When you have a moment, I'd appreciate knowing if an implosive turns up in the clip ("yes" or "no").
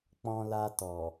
no